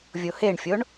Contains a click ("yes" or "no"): no